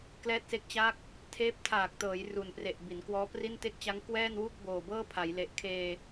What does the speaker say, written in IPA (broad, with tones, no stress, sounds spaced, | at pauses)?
k l ɛː˥˩ t̚ s e˥˩ k̚ t͡ɕ a˥˩ k̚ | tʰ eː˦˥ p̚ tʰ aː˨˩ k̚ t ɤː˩˦ j r u˨˩ n p r e˨˩ ʔ b i˩˦ n k w ɔː˦˥ p r i˥˩ n t e˥˩ k̚ t͡ɕ a˦˥ ŋ k w ɛː˥˩ n w u˥˩ k̚ b oː˨˩ b ɤː˥˩ pʰ a˩˦ j l e˨˩ ʔ kʰ eː˧